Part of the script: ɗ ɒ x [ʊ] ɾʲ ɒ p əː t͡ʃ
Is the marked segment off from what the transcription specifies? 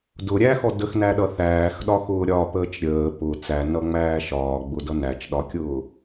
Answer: yes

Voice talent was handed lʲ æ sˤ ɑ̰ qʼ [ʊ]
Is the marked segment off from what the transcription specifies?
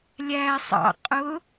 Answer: no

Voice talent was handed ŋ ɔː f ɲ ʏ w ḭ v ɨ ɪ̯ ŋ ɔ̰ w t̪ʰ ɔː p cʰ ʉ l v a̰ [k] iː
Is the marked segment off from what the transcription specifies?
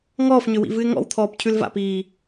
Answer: yes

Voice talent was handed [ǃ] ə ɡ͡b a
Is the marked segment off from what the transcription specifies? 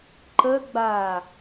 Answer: no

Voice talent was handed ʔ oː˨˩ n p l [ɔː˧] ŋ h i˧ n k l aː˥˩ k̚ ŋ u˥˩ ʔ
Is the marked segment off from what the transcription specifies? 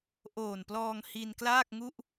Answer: no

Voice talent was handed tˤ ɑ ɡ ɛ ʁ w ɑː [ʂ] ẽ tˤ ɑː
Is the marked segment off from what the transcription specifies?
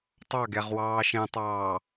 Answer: yes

